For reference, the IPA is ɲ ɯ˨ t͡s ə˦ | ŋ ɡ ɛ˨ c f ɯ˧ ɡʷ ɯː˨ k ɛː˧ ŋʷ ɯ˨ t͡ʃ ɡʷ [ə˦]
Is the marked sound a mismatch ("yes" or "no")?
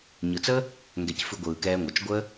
no